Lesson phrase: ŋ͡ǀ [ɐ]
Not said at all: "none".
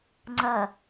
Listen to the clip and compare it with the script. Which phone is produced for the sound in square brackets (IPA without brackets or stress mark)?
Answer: ɐ